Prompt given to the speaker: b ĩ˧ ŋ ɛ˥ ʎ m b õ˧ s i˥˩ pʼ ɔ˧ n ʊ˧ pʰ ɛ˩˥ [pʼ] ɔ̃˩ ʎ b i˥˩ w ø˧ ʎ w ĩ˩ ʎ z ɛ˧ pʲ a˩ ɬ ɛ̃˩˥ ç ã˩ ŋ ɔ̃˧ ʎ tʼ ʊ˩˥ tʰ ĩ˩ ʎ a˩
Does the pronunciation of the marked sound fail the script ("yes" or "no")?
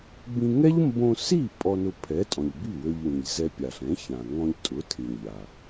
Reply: yes